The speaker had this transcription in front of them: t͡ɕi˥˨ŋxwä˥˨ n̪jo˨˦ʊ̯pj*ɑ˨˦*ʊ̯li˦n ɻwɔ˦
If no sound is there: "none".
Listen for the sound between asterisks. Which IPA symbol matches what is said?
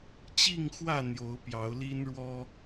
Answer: ɑ˨˦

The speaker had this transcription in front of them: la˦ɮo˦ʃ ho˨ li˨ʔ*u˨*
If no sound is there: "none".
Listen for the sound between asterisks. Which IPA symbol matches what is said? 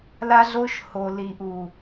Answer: u˨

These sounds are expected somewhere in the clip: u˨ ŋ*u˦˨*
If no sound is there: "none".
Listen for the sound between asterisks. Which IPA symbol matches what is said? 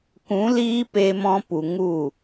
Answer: u˦˨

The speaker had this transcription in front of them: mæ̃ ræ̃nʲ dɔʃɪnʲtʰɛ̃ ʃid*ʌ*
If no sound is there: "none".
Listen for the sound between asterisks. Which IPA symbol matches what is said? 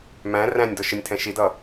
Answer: ʌ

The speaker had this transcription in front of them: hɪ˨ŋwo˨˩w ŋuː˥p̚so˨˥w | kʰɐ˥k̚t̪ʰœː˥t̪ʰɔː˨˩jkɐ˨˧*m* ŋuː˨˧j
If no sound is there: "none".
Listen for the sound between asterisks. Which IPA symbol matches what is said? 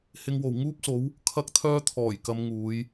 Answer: m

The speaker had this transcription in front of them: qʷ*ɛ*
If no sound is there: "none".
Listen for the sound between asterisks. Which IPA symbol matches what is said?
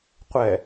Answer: ɛ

